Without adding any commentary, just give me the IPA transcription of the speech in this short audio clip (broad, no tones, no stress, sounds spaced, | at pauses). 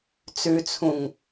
t͡s ʉ t͡sʰ ũ ŋ